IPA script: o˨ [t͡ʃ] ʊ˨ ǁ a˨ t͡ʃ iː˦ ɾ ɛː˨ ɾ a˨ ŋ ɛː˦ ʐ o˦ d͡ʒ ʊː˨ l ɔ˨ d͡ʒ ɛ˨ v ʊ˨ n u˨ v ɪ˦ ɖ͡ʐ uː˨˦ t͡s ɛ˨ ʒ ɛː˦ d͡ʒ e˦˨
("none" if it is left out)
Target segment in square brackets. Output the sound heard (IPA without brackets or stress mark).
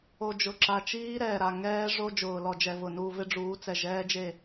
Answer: d͡ʒ